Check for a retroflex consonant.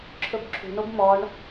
present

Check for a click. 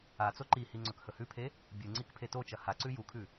present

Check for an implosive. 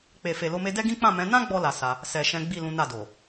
absent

